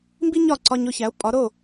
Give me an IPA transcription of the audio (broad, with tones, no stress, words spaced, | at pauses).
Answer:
mbi˥ɲɒ˥˩ ǀɒ˧ɲ o˧çæ˩˥o̯ pʼɒ˩˥ɾo˥˩